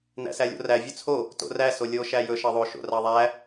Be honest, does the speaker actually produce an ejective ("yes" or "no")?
no